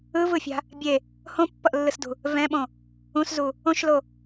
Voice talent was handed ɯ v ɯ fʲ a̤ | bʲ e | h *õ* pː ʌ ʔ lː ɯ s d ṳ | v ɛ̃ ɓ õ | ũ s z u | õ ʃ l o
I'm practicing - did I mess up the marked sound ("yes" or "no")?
no